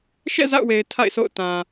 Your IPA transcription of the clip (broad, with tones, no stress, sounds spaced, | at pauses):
ʃ ɛ̰˦˨ z a̰˦˨ ʊ̯ w e˨ ɪ̯ tʰ a̰˦˨ ɪ̯ sʰ o̰˦˨ ʊ̯ t ã˨